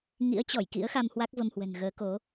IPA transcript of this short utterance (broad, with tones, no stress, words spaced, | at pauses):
ŋḭ˧˥ə̯t͡ɕɔ˧˩jkḭ˧˥ə̯xa˧m hwa˦˥k̚və˧mhwɛ̤˨˩ŋ ɣəː˨˦ko˨˦